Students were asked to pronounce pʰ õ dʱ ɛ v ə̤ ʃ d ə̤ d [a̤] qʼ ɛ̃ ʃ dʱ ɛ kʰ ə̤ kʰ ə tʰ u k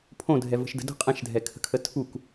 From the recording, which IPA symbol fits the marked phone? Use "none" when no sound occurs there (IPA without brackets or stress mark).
ə̤